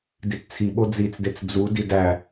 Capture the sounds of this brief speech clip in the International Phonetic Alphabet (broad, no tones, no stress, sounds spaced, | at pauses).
d i t t͡sʰ i ɓ o d͡z i t͡s d e t͡s d͡z u d i d æ